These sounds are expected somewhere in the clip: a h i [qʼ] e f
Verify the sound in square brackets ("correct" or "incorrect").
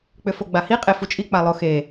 correct